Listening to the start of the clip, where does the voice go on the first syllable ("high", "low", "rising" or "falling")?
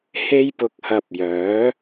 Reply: high